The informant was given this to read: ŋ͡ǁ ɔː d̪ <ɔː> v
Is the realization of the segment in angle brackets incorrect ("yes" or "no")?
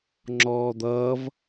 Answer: yes